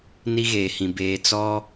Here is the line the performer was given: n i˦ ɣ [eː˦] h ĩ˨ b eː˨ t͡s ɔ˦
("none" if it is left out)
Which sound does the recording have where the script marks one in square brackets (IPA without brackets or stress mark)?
eː˨